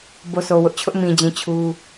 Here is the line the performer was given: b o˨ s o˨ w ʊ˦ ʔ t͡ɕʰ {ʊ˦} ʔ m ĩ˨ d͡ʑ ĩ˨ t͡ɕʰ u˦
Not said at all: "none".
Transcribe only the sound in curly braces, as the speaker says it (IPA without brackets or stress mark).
ʊ˦